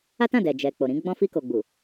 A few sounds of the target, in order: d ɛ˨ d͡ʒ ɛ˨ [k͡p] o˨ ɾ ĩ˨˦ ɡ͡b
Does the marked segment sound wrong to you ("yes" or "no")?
no